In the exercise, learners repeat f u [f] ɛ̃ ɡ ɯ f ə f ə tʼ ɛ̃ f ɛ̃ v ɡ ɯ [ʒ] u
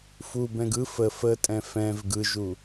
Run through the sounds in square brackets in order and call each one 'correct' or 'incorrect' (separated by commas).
incorrect, correct